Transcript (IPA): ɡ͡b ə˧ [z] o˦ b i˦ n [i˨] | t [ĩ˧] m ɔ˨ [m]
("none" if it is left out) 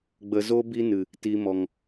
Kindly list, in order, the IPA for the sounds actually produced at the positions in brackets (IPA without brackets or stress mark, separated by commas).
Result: z, ɨ˨, i˧, ŋ